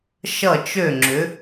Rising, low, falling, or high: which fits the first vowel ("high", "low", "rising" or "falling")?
falling